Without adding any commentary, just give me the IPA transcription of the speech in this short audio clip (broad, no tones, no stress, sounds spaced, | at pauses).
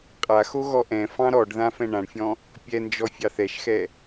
qʼ a x o ɣ ɔ ʔ ɛ̃ f ɑ̃ ɾ ɔ ɖ ð ã f ɛ̃ ɳ ã ɳ fʲ ɔ̃ | pʲ ɛ n d͡ʒ ɔ fʲ ɑ θ ɛ ʃ x ɛ